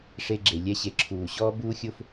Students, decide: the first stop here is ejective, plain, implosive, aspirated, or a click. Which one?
click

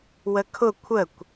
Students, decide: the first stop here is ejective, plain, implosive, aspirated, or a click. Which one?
aspirated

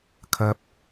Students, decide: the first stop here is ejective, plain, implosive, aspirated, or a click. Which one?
aspirated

